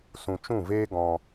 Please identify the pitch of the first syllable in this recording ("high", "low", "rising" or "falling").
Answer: low